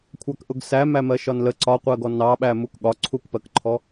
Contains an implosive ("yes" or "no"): yes